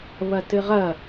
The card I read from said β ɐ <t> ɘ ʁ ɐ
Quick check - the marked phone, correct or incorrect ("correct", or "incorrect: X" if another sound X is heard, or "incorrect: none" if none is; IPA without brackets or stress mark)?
correct